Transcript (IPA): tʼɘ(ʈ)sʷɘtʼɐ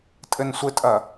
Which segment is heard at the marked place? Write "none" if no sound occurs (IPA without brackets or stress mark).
n